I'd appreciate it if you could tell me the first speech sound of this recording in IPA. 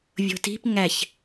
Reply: vʲ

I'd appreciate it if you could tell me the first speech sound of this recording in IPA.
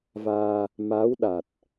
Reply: v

